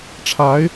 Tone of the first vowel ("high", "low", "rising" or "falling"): rising